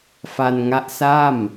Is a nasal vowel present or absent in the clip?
absent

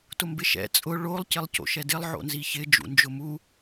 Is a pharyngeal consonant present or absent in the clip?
present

